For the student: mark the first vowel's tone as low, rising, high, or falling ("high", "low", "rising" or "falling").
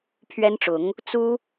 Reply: high